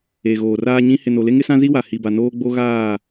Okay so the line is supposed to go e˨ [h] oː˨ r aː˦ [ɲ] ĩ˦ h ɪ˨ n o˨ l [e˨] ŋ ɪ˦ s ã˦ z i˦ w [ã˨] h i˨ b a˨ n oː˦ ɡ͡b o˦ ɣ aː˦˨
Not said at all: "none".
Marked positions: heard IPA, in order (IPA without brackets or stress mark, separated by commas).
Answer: ɣ, ɲ, e˦, a˨